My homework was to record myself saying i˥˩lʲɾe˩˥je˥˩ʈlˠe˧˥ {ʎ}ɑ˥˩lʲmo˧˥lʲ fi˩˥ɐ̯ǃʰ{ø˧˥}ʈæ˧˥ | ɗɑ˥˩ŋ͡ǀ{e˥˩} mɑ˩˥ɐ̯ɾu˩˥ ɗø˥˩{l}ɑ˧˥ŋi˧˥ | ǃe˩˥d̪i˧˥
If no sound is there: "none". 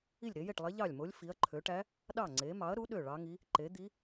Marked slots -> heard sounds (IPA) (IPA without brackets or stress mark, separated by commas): ʎ, ø˩˥, e˩˥, ɭ